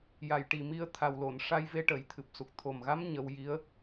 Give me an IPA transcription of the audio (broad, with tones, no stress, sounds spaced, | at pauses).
j a˨˩ j ʈ i˨˩ m i˧ ə̯ t̪ʰ a˨˩ w l o˨˩˨ n ʂ a˧ j v e˧ ʈ ə˨˩˦ j t̪ʰ ɨ˨˩ p̚ s u˨˩ k̚ t̪ʰ o˨˩ m ɣ a˧˥ m ɲ ə˧ w j i˧˥ ə̯